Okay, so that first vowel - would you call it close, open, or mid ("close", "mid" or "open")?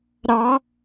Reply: open